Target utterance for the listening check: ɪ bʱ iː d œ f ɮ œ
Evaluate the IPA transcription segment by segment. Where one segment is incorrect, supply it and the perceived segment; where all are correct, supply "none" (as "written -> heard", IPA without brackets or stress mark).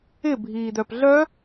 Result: f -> p